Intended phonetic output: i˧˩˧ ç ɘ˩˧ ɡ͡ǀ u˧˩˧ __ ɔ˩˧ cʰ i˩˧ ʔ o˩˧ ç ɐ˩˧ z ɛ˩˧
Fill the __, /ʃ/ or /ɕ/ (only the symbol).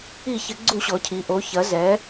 ɕ